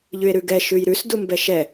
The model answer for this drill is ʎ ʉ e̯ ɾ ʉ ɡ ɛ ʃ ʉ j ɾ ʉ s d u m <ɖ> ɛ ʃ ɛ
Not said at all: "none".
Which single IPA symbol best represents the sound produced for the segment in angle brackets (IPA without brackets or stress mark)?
b